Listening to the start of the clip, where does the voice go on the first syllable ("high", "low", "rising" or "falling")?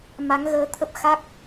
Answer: rising